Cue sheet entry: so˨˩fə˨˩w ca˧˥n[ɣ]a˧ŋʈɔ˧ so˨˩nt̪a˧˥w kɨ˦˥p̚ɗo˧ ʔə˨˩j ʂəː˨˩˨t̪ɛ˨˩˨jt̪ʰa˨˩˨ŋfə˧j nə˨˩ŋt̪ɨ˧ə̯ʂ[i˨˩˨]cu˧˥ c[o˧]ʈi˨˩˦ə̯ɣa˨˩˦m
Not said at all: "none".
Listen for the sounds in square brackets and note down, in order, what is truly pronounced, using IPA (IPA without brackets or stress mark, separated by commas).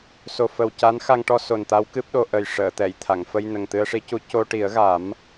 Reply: x, i˧˥, o˧